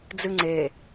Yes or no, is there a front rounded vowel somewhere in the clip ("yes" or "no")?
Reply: no